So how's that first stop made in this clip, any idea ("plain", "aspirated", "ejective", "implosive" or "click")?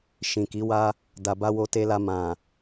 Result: plain